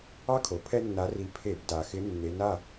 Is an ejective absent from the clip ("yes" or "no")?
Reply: yes